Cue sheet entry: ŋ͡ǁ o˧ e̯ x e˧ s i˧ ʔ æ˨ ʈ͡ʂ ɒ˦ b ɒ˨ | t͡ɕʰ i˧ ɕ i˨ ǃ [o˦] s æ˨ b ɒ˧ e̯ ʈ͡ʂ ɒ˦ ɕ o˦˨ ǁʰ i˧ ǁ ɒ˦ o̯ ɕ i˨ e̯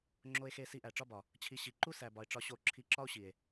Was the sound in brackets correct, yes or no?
no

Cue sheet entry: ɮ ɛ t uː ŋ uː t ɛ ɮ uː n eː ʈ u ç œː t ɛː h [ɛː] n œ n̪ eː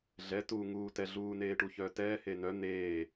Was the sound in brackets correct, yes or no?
no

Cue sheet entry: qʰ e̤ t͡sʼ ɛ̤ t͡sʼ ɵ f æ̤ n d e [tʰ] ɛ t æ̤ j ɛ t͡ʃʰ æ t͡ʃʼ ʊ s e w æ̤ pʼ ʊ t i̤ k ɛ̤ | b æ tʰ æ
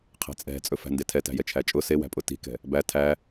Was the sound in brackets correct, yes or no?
yes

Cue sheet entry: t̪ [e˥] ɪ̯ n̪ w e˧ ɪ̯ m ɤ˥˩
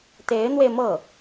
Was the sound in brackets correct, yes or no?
no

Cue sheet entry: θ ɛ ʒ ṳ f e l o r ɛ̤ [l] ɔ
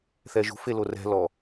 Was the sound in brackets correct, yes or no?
yes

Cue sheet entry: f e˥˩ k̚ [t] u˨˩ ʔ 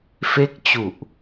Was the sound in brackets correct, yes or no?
no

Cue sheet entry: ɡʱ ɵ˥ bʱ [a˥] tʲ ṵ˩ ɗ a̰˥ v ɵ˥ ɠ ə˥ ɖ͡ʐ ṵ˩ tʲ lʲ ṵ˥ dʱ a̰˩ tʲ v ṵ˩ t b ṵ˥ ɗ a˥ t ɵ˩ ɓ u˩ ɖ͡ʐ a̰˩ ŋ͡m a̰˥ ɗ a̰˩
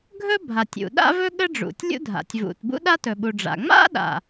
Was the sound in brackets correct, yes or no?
no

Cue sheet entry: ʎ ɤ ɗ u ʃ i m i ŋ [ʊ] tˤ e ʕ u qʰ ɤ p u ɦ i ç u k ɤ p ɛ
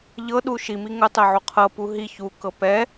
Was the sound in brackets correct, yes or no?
yes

